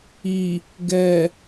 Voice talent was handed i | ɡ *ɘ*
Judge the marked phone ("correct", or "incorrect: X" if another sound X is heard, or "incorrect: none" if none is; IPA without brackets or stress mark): incorrect: ɛ